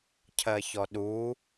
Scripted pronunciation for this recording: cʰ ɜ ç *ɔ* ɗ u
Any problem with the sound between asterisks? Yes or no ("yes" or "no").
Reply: no